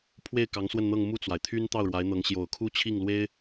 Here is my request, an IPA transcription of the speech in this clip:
pʰ w e˥˩ ɪ̯ k ɑ˧˥ ŋ s w ə˥˧ n n̪ ɤ˥˧ ŋ m u˥˩ t͡s w a˩ ɪ̯ t̪ʰ y˥ n t̪ ɑ˥˩ ʊ̯ ɻ w a˧˥ ɪ̯ n̪ ɤ˧˥ ŋ ɕ j o˨˩ ʊ̯ kʰ u˥ t͡ɕʰ i˥˩ ŋ l w e˥ ɪ̯

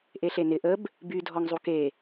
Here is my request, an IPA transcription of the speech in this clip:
ʔ e ɬ e n ɪ ʔ ə b | b y dʱ ɔ ŋ zˤ u k e

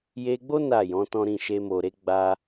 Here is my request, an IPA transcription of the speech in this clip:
j e˧ ɡ͡b o˦ n a˦˨ j ɔ̃˨˦ t ɔ̃˦ ɾ ĩ˦˨ ʃ e˧ m o˨ ɾ e˨˦ ɡ͡b a˧

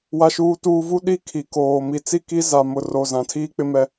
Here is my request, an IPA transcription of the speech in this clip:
w a˦ ʃ uː˦ t uː˦ v u˦ ɗ i˦ kʰ i˨ k oː˨ m i˨ t͡s i˦˨ k i˦ z a˨ m ʊ˨ r o˨ z ã˨ tʰ iː˦ k͡p ɪ˦ m ɛ˦

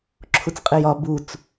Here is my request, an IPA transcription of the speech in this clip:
ǁʰ u t͡s qʼ e j ɒ b u t͡s

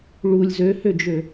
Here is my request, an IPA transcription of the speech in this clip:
ɭ u lʲ z ø h ø d͡ʒ ø

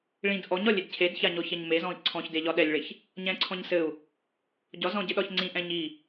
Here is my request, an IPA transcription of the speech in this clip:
ɭ ĩ d ʔ ɔ ɲ ɒ lʲ e d cʰ e d ç a ɲ ɔ ç ɛ ɲ m e z ɔ̃ i̯ ǀʰ ɔ̃ ç d e ʎ ɒ ɗ ɛ lʲ ɭ e ç | ɲ ɛ̃ ǀʰ ɔ̃ ɲ s ɘ u̯ | ɟ ɒ z ɔ̃ ɟ ɘ ɗ ɒ ç ŋ͡ǀ ĩ ʔ ɛ̃ ɲ i

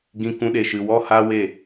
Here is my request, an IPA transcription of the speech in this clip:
ɡ ĩ˨ k ũ˨˦ ɗ e˨ ʃ ɨ˨ w ɔ˦ h a˦ w e˦˨

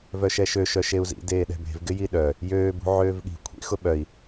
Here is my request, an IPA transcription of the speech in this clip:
v œ ʃ ɛ ʃ ø ʃ œ ʃ e u̯ z ḭ d eː ɗ ɛ̤ b e̤ v ɡ ɪ j i ɗ œ | j øː b ṳ ʕ øː v ɠ i̤ kʷʰ ḭ x ʊ ɓ œ i̯

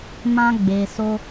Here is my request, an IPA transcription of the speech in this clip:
m ã˦ ɡ͡b e˧ s o˦

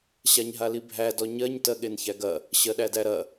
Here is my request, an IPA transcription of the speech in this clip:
ɕ a ɲ ɦ a l i bʱ æ d ɔ ɲ ɜ ɲ t ɜ ɠ e n ç æ ɡ ɐ | ɕ ɜ ɗ æ d æ ɾ ɐ

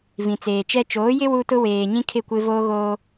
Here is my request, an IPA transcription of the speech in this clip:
v ĩ˨ t͡s eː˨ t͡ʃ ɛ˦ t͡ʃ oː˨˦ j ɪ˦ w u˦ t ʊ˦ w eː˨ ɲ ĩ˦ kʰ ɪ˦˨ kʷ ɪ˦ v oː˦ ɣ oː˦

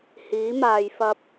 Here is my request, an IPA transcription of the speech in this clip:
h iː˨˥ m aː˧ j f ɐ˥ p̚

